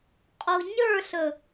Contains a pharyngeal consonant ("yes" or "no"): no